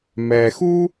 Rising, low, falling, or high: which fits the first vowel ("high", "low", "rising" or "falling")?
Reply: low